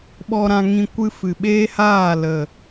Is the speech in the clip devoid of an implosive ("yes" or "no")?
no